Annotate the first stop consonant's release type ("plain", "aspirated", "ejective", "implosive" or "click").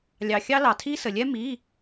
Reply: aspirated